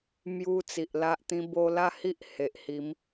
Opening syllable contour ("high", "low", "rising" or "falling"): high